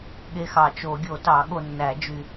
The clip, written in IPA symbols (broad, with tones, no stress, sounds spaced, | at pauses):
ɠ e˦ x ɑ˨˩˦ t͡ʃ o˨˩˦ ɡʲ o˨˩˦ t ɑ˨˩˦ ɠ o˨ nː æ˨˩˦ d͡ʒ y˨